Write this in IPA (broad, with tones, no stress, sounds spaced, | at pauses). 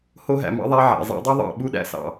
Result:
h o˧ ɦ æ̰˨ m ɑ̰˧ ðˤ æ˧ ʕ æ̰˨ zˤ æ̰˧ dˤ ø˦ ðˤ ɑ̰˦˨ ɓ u˦ ɗ æ̰˧ s ɑ̰˨